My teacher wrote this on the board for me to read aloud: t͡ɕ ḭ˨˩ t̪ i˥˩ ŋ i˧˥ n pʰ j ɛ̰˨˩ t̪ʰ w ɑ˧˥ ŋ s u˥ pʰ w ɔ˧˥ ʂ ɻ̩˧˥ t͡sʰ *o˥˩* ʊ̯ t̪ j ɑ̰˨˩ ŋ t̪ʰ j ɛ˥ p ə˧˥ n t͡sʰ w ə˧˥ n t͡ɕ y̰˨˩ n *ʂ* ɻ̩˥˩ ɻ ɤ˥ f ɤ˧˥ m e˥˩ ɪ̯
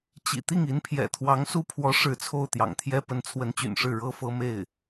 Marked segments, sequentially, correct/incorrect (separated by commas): correct, correct